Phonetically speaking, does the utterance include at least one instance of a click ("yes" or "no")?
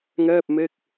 no